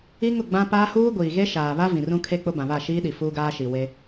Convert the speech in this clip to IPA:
i˦ ŋ ʊ˦˨ ɡ͡b ã˦ p aː˦ h uː˦ ɡʷ iː˨ ɣ e˦ ʃ aː˨ β a˦ v ĩ˨ r ũ˦ kʰ e˦ k͡p ʊ˦ b ã˨ β a˦˨ ʃ iː˦ ɗ i˨ f uː˦ ɡ aː˦ ʃ i˨ w e˦

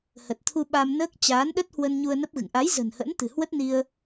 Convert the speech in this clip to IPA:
h ə˨˩ t̚ t̪ʰ u˧ ɓ a˧ m n əː˦˥ k̚ t͡ɕ aː˨˦ n ɗ ə˦˥ t̚ h w ə˧ n ɲ u˧ ə̯ n ə˦˥ p̚ ɣ ɨ̰˧˨ ŋ ʔ a˨˦ j z ə̤˨˩ n h ə̰˧˥ n t̪ ɨ̤˨˩ h w ə˦˥ t̚ n i˧ ə̯

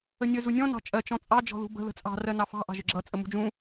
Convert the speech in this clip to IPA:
ə nʲ ə z u nʲ ɔ̃ n ɑ̤ t͡ʃʼ ɜ t͡ʃ ɔ̃ t͡sʼ ɑ d͡ʒ ɔ̤ ð ṳ b ə̤ ð ə̤ t͡sʼ ɑ̤ r ɜ n ɑ f ɑ̤ ʔ ɑ̤ ʒ ə ɡ͡ǁ ʌ t͡sʼ ə m ṳ d͡ʒ ũ

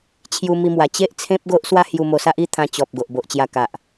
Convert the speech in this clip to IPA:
t͡ɕʰ j u˧ m i˧ m w a˨˩ t͡ɕ e˦ ʔ t͡sʰ ẽ˦ p̚ ɡ o˦ ʔ s w a˦ h j u˧ m o˧ s a˦ ʔ i˥˧ t̪ʰ ã˧ t͡ɕ ɔ˨ p̚ ɡ o˨ ʔ b o˨ ʔ t͡ɕ j a˧ k a˨ ʔ

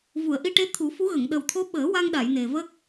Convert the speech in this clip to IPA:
v u˨˩˨ ə̯ ʔ i˧ ʈ e˧˥ t̪ʰ u˨˩˦ f u˧˥ ɣ ə˨˩˨ ŋ ɗ ə˨˩ w t̪ʰ o˧˥ ɓ əː˨˩˦ w a˧ ŋ ɗ a˨˩˨ j n e˨˩ v ə˦˥ k̚

